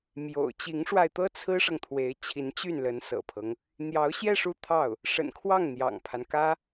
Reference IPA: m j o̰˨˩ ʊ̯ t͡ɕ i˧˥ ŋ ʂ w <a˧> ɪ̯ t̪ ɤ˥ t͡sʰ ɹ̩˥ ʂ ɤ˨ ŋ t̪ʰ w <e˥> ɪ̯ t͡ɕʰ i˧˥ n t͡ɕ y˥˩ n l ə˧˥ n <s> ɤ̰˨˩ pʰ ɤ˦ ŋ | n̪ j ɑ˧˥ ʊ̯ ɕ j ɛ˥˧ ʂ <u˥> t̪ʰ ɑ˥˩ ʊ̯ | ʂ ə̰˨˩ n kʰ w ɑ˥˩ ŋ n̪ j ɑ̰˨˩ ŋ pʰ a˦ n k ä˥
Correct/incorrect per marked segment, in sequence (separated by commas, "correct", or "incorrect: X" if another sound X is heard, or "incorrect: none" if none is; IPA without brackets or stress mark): correct, incorrect: e˧˥, correct, incorrect: u˥˧